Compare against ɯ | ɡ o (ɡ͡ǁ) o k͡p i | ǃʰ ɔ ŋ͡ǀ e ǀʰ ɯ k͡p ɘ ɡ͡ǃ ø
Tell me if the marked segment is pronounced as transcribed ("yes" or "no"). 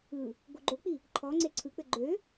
no